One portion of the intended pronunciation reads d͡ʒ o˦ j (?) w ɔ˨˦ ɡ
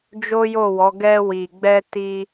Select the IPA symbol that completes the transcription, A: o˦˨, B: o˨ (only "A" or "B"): A